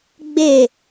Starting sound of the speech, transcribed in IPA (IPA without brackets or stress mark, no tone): ɡ͡b